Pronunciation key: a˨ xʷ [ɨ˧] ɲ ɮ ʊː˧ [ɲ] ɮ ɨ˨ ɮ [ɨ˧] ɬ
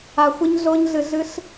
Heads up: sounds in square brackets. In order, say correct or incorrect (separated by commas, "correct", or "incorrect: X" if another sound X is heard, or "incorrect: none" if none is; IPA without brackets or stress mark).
correct, correct, correct